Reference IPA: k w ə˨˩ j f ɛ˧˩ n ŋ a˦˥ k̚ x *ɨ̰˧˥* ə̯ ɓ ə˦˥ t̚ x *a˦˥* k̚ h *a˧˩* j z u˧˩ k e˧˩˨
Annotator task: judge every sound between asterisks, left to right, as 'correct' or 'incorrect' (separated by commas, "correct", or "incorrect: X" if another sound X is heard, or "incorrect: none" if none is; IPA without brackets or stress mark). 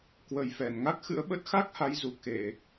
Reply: correct, correct, incorrect: a˨˦